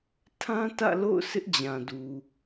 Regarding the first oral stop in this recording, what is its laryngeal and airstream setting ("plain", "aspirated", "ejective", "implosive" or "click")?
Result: aspirated